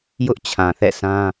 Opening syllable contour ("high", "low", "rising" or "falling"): high